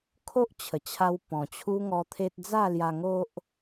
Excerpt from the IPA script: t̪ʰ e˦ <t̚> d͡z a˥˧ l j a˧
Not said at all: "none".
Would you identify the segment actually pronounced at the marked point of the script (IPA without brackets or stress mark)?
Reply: t̚